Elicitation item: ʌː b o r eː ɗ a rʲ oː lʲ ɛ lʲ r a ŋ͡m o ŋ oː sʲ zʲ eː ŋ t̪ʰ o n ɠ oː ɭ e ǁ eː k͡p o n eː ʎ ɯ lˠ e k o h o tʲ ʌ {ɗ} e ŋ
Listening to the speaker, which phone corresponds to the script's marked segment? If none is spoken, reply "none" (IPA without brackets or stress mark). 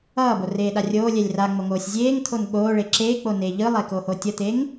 t̪